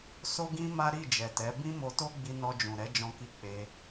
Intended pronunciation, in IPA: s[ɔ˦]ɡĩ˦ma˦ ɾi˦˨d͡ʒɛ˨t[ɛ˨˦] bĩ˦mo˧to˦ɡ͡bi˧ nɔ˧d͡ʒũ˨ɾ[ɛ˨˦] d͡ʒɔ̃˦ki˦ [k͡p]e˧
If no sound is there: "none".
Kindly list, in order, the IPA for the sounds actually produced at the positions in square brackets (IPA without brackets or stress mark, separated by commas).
o˦, ɛ˨˦, ɛ˨˦, k͡p